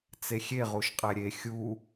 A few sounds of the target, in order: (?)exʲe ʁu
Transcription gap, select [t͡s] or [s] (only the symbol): t͡s